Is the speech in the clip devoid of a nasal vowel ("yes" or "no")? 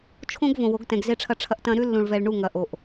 no